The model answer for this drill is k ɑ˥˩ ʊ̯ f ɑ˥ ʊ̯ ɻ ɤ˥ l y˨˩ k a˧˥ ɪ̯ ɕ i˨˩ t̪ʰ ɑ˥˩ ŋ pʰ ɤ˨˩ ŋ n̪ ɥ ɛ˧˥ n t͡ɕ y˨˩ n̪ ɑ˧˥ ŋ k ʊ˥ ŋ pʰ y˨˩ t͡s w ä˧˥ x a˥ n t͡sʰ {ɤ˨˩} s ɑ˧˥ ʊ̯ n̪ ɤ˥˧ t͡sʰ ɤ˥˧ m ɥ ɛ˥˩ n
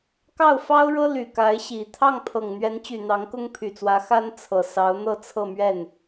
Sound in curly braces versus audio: correct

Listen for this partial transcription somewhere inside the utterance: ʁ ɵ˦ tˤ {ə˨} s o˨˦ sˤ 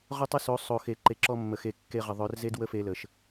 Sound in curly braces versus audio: incorrect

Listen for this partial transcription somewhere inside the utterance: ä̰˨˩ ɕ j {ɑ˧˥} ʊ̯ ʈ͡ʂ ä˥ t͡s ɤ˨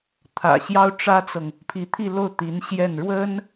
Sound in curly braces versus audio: incorrect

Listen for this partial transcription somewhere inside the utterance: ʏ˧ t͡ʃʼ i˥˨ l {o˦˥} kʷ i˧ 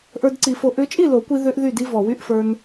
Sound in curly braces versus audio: incorrect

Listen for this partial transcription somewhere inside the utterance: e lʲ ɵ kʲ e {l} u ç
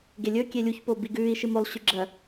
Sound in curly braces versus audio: incorrect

